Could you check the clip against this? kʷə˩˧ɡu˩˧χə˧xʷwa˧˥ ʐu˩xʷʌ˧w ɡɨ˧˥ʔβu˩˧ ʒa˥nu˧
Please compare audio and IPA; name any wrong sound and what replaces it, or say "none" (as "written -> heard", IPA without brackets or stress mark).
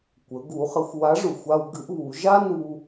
ʌ˧ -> a˧